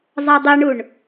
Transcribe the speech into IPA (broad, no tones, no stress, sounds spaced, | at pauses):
zˤ a dˤ ɛ ɳ u ɳ